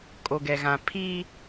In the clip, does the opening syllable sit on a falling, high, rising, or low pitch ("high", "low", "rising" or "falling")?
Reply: low